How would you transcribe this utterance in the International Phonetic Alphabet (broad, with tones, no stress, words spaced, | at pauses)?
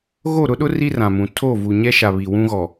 ɣo˦˨ɾʊ˦ɗʊ˦ ri˦rã˨mũ˨ tʰo˦˨vu˨ ɲɛ˦ʃa˨ βi˨wũ˦ɣɔ˨